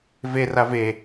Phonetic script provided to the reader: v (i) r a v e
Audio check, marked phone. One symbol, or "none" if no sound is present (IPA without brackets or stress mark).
e